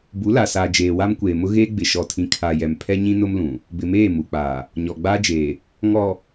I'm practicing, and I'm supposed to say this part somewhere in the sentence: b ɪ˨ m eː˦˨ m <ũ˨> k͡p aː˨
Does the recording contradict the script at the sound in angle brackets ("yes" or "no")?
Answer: yes